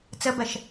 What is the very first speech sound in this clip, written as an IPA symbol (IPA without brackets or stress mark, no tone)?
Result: t͡s